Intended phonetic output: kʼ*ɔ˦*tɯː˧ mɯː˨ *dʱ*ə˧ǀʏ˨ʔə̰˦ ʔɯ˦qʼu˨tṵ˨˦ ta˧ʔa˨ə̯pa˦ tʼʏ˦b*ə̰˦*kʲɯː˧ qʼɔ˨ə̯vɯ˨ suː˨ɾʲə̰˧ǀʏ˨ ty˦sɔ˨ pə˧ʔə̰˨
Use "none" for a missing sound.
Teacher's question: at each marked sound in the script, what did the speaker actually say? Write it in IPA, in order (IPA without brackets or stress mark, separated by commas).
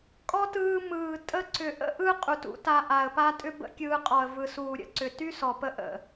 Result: ɔ˦, tʼ, ə̰˦